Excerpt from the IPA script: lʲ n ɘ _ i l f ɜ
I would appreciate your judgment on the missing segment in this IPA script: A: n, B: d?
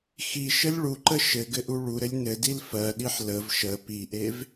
B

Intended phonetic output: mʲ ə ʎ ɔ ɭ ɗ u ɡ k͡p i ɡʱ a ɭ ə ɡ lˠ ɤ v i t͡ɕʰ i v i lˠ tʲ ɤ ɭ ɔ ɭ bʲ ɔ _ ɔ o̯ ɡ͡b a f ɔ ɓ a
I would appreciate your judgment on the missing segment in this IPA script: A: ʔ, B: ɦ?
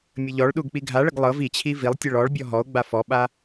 B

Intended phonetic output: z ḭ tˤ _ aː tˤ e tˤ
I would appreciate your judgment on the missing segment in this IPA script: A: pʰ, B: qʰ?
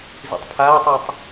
A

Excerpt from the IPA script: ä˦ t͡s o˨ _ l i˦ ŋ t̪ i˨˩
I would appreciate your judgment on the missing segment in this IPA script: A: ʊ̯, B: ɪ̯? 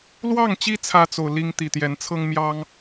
A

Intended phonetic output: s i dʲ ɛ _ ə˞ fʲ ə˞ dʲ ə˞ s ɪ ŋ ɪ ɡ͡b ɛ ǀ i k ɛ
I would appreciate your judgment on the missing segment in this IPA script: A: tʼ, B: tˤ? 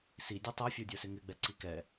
B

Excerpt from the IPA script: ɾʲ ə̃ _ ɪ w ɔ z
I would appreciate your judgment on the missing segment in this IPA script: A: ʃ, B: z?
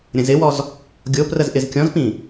B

